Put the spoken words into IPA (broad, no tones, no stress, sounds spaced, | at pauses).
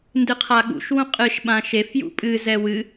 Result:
n d ɨ qʰ a ɠ ṵ ʃ w ũ qʼ ɨ ʃ ɓ ã ʃ e f j ṵ pʼ ɨ z ɛ w ɨ